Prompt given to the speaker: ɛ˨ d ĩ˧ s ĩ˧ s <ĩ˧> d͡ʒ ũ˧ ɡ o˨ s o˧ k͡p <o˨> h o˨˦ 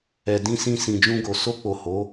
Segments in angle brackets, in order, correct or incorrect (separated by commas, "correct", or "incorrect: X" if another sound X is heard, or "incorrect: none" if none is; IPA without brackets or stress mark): incorrect: ĩ˨, correct